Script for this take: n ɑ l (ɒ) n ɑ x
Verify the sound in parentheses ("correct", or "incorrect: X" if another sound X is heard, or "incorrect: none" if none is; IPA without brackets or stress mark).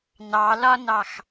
correct